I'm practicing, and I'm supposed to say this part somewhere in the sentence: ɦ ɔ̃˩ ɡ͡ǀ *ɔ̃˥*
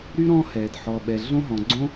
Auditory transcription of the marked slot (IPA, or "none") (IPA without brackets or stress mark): õ˥